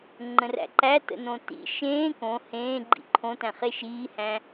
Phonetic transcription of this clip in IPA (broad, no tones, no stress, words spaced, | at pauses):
ŋ͡ǃə̃ræ̰ǃæ tə̰nõtḭ ʃẽː kõ hẽːɡ͡ǃḭ ǃʰõtæ̃χe ʃiːhæ̃